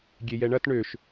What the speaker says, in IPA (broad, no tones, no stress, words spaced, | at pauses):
ɡʲejɛɳɐt ɳøʃ